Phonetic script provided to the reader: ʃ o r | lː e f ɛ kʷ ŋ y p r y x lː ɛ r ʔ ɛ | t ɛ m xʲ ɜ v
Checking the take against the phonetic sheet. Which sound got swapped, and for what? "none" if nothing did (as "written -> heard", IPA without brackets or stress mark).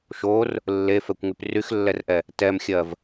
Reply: none